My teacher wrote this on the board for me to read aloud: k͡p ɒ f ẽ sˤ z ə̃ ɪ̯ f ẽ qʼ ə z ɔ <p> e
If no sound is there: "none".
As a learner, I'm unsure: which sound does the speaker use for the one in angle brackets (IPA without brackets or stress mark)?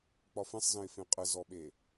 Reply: ɓ